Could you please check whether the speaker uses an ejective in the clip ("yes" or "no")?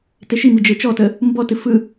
no